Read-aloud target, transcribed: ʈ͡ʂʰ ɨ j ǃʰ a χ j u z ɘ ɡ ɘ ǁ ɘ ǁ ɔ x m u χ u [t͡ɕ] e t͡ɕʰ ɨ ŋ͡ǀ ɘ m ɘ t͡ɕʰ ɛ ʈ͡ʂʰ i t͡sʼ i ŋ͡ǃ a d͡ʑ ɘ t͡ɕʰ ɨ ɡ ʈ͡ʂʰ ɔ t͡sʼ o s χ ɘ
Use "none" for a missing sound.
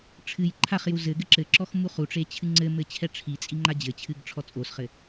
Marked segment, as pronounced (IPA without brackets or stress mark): ʈ͡ʂ